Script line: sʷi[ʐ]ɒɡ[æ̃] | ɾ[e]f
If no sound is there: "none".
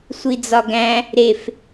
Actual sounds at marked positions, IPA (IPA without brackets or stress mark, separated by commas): d͡z, æ̃, e